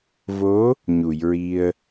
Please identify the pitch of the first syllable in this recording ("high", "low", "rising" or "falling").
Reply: rising